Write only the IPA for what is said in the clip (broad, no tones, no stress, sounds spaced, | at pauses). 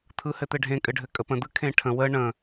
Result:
t̪ʰ ɯ h ɘ t̪ ɘ ɖʱ ẽ kʼ ɘ ɖʱ ɘ kʼ ə p ə̃ d̪ ɯ kʰ ẽ ʈʰ ə̃ w ə ɳ ə̃